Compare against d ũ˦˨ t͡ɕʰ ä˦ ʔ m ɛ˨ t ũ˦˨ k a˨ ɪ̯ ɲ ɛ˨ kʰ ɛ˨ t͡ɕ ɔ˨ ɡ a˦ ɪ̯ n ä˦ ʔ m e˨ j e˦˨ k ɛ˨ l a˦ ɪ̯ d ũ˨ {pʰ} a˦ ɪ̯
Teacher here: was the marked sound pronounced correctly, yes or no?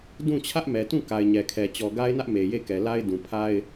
yes